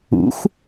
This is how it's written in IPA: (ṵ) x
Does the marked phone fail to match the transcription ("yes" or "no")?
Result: no